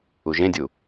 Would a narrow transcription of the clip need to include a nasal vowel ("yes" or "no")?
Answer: yes